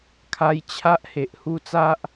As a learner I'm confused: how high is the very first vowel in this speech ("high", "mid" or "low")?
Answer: low